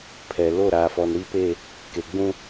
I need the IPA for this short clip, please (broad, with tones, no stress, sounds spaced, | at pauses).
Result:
pʰ ɛ˨ l o˦˨ ɾ aː˨ f ɔ˨ n ɾ i˦ p e˦˨ | k e˨ ɡ͡b ũ˦